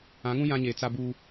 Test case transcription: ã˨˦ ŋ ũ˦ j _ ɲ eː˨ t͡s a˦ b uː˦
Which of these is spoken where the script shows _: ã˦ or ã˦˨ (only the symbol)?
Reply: ã˦